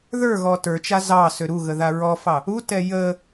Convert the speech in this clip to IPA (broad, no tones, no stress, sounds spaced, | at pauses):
ð ə˞ ɣ ɔ t ə˞ t͡ʃ a z ɑ s ø ɾ u ɣ ə ð a ɹ ɔ f ɑ | u t ɛ j ə